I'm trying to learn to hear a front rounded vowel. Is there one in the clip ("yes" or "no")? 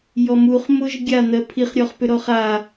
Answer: yes